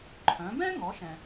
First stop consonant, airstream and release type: click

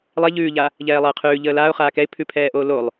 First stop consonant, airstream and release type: aspirated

